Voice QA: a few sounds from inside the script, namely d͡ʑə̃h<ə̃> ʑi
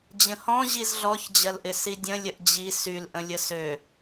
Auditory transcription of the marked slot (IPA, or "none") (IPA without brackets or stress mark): ɔ̃